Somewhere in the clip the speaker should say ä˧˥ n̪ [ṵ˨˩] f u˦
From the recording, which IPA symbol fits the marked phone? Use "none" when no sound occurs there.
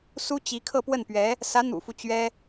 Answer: ṵ˨˩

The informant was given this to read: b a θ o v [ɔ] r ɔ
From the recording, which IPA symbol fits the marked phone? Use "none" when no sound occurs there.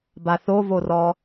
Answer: o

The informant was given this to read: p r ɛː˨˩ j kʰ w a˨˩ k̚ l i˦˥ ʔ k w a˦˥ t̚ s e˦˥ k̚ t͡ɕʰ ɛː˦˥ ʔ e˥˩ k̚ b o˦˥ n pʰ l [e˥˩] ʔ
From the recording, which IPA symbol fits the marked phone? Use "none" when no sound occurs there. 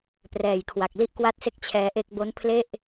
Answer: e˥˩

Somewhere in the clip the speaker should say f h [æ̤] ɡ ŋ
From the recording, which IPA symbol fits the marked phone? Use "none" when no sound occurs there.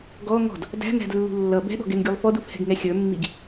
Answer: ɛ̤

